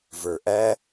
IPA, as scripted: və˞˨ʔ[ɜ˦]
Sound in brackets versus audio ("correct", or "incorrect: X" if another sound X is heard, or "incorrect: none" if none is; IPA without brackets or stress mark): incorrect: æ˦